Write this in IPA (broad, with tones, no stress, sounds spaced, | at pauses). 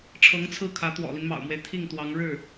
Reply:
ʈ͡ʂʰ ɤ˧˥ ŋ t͡sʰ ɹ̩˥˩ kʰ ä˧˥ t̪ w ɔ̰˨˩ l i˦ n m ɑ̰˨˩ ʊ̯ m w e˦ ɪ̯ t̪ʰ i˥˩ ŋ t̪ w ɑ˧˥ ŋ ɻ ɻ̩˥˩